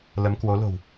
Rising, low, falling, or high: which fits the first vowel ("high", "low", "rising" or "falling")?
rising